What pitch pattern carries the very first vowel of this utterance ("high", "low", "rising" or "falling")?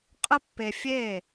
high